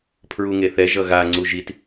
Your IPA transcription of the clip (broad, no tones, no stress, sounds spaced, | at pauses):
pʰ ɹ u ŋ e θ ɛ ʒ ʌ ɣ a ŋ͡ǀ u ʒ i t